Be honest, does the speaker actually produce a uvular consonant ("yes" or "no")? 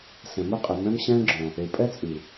yes